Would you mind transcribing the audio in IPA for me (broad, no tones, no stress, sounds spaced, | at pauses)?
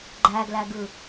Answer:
ɡ͡ǃ æ ɡ l æ ɡ ɯ